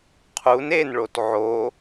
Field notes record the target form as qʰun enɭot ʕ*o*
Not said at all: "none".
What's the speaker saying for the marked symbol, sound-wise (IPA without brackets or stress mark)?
o